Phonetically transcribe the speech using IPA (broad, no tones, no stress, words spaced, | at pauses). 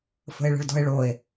fə̤e̯ɭə̤ɭdɔ̤e̯ɭoe̯